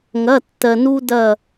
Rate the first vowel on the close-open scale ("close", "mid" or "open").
open